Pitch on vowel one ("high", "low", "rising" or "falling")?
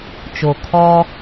low